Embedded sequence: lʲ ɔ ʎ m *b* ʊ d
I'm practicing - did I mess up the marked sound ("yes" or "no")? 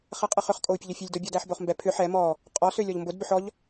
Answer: no